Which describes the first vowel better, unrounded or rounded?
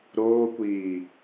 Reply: rounded